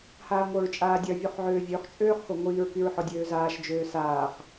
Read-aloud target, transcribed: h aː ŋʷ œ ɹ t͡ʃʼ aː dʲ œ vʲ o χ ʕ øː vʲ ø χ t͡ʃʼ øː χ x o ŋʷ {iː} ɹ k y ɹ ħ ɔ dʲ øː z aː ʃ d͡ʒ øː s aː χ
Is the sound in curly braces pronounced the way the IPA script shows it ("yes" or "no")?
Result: yes